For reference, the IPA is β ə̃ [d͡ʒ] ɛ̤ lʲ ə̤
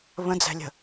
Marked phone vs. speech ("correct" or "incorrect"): incorrect